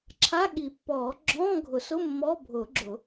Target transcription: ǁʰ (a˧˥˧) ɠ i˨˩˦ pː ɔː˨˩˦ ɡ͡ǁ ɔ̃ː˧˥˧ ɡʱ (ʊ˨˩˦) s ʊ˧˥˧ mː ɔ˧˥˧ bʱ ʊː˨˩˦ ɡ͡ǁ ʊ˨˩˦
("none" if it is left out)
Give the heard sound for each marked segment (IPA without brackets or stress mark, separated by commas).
a˧˥˧, ʊ˨˩˦